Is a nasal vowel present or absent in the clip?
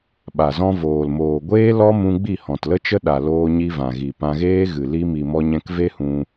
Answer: present